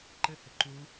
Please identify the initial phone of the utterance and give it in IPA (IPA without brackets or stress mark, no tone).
ǃ